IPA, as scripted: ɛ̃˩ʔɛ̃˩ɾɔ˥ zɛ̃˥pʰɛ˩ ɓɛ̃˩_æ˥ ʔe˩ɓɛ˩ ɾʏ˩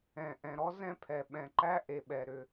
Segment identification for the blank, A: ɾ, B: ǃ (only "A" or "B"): B